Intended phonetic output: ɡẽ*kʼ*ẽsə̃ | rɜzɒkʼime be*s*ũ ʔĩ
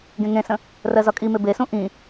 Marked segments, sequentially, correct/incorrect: incorrect, correct

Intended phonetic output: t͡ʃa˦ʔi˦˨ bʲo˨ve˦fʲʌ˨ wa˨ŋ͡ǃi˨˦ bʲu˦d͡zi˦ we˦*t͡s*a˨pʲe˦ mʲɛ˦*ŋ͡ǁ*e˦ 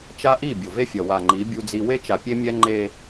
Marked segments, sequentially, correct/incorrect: incorrect, incorrect

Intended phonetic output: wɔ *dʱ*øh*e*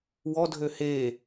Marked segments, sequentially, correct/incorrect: correct, incorrect

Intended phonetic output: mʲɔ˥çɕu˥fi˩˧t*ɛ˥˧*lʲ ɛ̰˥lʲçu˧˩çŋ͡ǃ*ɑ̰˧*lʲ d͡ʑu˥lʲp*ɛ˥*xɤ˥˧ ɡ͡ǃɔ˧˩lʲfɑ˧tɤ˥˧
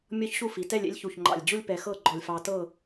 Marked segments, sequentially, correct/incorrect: correct, incorrect, incorrect

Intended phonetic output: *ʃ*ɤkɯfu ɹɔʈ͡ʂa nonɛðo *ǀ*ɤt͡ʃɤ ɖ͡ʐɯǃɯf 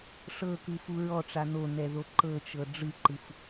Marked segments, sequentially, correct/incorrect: incorrect, incorrect

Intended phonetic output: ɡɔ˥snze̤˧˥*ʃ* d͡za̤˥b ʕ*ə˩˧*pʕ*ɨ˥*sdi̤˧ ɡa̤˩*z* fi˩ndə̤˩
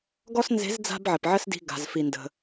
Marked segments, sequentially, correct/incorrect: incorrect, incorrect, incorrect, correct

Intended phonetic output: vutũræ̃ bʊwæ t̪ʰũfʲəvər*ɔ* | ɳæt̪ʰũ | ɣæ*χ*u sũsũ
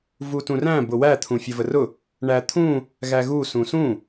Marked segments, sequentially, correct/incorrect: incorrect, incorrect

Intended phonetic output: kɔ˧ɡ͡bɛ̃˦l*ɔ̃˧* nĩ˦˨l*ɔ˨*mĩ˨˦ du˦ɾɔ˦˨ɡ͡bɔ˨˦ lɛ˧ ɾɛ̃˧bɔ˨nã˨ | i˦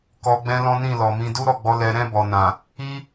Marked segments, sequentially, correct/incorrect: incorrect, correct

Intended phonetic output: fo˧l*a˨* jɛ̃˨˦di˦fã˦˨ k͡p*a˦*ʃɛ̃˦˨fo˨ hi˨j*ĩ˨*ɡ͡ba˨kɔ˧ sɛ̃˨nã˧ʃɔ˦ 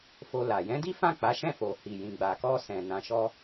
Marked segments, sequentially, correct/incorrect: correct, incorrect, correct

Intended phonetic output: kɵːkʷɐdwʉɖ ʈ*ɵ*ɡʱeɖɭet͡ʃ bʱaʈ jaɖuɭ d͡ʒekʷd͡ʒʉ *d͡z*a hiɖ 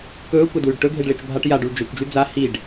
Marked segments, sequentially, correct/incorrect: correct, correct

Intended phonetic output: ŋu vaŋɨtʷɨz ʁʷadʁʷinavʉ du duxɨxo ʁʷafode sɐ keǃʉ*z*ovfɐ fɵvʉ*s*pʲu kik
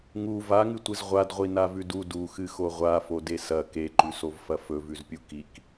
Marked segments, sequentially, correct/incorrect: incorrect, incorrect

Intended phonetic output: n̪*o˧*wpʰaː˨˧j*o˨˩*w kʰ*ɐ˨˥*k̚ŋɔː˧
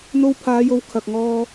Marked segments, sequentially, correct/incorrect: correct, incorrect, incorrect

